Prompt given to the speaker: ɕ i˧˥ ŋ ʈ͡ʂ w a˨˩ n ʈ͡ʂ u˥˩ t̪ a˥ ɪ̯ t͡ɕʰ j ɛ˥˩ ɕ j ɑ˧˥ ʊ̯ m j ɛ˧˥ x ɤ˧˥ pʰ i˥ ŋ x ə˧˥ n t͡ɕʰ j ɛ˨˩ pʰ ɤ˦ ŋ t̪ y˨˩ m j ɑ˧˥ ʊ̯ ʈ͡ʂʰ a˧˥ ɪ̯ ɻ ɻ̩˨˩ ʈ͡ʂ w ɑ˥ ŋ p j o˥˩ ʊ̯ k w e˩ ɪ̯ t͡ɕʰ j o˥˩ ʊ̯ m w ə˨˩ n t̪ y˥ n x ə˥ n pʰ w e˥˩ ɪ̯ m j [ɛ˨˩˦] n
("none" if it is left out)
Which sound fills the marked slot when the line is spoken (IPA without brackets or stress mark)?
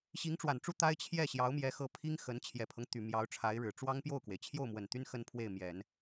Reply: ɛ˨˩˦